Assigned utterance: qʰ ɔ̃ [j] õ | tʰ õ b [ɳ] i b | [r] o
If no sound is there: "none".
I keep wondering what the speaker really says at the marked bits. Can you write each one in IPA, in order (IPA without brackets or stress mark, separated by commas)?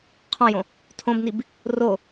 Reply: j, n, r